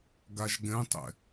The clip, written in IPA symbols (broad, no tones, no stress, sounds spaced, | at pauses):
ɡ a ʒ ɡ ɛ̃ tˤ ɛ̰